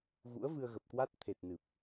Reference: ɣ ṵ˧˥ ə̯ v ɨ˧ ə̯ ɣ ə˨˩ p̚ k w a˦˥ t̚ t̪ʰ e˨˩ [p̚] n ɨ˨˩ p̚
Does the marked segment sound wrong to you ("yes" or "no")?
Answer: yes